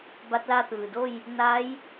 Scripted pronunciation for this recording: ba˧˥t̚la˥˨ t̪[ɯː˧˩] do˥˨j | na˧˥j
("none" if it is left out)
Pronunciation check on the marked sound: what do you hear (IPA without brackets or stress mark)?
ɯː˩